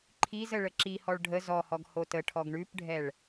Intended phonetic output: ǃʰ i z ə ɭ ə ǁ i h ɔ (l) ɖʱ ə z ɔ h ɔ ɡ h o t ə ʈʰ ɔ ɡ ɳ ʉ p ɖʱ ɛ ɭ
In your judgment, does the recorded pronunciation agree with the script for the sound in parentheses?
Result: no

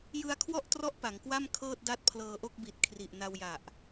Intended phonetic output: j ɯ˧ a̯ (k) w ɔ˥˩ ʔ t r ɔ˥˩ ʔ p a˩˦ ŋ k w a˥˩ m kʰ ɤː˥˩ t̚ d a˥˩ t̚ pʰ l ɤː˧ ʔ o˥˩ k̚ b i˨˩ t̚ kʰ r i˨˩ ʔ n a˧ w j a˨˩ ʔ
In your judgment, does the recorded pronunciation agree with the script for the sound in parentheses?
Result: no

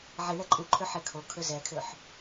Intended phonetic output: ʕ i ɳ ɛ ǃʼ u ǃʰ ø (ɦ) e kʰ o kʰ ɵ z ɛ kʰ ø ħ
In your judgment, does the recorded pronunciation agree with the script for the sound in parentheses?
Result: no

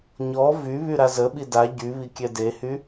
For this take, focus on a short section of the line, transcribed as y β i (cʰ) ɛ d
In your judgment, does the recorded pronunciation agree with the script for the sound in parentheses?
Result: no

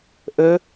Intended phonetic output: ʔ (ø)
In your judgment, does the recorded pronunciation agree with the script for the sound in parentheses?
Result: yes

